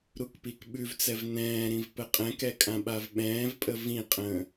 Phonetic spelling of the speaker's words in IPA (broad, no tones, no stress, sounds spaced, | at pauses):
ɾ u k p i k ɓ ʉ v t͡s ɛ v n ɛ̃ː ɾ ĩ v p ə qʼ ɛ̃ k ɛ kʼ ã ɓ a v ɓ ɛ̃ː v pʼ ə v ĩ qʼ ə̃ː